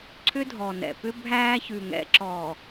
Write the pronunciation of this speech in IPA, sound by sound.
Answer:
ǀʰʏ˦dʱɔ˨nɛ̰˨ pʏ˦bʱæː˦çʉ˨ ŋɛ̰˨ǁɔː˨

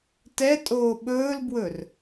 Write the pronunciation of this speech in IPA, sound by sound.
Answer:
tɛ tʼoːɓɵːlbwɵr

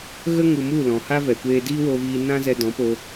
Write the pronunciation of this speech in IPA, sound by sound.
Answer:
ɣə˦ŋu˨mu˦˨ lɔ̃˨ha˦vɛ˨kʷeː˧ diː˦wo˧viː˧ nã˦zɛ˧ dɔ̃˨˦po˧

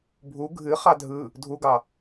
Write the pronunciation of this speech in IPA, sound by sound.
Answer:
bʱu ɡʱɨχɑ dʱɯ | dʱuɡɑ

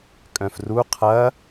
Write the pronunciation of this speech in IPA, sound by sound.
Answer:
kʼœ̃fru qʰɐ

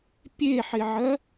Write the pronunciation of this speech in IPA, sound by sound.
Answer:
pʲeħɪʕɜ

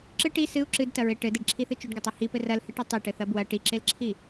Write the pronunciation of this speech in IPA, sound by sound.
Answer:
ǁɨ ʈi sɨu̯ ǁɨdtɐɹe ʈɘdeɖǁʰiθɨ t͡ʃuɖɡɘtˤi hipɘ rɐlhɨʈɐ tˤiʈɘθɐ bwɐ ʈiǁelǁʰi

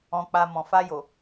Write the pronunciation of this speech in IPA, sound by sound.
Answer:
ɔ̃˧k͡pa˧ mɔ̃˨ fa˧jo˨

